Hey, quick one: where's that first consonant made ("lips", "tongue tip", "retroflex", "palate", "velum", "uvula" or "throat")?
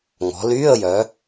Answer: velum